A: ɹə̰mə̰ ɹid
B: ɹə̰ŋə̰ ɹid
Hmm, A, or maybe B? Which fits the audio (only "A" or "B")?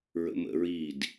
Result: A